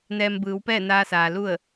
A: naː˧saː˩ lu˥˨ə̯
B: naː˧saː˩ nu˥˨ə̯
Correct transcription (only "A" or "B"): A